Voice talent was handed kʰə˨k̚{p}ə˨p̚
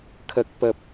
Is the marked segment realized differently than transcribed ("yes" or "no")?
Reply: no